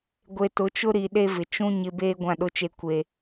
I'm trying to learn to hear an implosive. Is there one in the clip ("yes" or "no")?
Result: yes